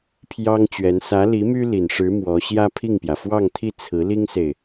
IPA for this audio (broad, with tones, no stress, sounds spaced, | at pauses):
pʰ j ɑ˥ ŋ t͡ɕ ɥ ɛ˧˥ n s ä˧˥ l i˧˥ m y˥ l i˨˩ n ʂ ɻ̩˧˥ m w ɔ˧˥ ɕ j ä˥ pʰ i˥˩ ŋ p j ä˩ f w ɑ˥˧ ŋ t̪ʰ i˥˩ t͡sʰ ɹ̩˧˥ l i˥ ŋ s e˨ ɪ̯